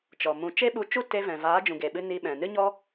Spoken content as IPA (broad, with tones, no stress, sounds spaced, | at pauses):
t͡ʃ ɔ˨ m ũ˧ t͡ʃ e˦ ɓ u˧ t͡ʃ u˦ t e˧ v ɛ̃˨ v aː˨˦ d͡ʒ ũ˨ ɡ e˨ ɓ ɨ˧ n i˧ ɓ ɛ̃˨ n ɨ˦ ɲ ɔ˦